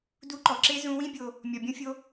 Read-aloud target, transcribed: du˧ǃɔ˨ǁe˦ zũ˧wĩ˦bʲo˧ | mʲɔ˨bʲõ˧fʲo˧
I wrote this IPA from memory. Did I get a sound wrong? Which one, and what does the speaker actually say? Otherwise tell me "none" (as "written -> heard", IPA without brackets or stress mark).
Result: none